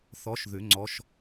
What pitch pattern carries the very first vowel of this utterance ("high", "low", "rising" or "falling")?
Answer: rising